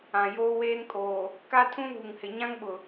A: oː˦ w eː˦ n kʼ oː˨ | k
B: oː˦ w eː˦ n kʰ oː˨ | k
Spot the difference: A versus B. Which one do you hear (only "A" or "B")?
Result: A